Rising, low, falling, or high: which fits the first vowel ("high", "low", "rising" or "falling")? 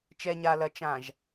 low